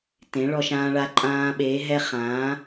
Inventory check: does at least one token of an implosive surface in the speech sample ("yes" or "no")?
yes